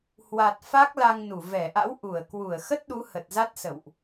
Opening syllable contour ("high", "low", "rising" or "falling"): low